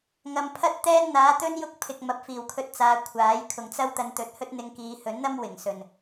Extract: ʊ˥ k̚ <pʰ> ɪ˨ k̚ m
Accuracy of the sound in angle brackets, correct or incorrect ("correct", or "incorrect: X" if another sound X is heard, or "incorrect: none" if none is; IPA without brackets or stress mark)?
correct